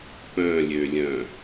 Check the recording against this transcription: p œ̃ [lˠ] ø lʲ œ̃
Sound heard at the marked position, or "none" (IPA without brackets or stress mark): lʲ